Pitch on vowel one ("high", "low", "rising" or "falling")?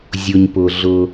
low